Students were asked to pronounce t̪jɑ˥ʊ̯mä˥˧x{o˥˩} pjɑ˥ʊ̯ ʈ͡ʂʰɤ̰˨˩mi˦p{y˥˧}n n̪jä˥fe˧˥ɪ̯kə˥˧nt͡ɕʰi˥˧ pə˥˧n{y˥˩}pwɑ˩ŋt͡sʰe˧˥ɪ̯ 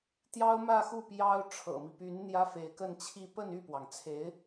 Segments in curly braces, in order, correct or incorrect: incorrect, incorrect, correct

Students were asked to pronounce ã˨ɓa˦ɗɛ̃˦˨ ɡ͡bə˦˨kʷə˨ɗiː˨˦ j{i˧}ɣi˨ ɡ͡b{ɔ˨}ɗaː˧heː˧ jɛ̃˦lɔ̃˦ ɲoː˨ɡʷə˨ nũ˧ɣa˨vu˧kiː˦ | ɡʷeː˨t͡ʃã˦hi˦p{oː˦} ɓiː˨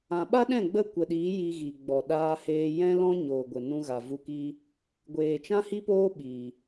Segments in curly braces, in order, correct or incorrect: correct, correct, correct

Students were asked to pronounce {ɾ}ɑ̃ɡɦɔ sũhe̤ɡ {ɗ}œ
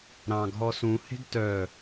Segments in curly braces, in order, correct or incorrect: correct, incorrect

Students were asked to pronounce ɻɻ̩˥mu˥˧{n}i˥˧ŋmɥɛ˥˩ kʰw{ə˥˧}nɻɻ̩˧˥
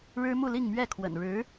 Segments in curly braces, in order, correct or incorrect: incorrect, incorrect

